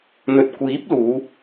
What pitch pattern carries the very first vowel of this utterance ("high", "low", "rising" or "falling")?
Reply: low